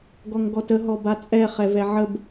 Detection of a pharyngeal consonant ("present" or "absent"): present